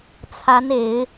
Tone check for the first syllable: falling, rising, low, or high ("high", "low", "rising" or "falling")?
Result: rising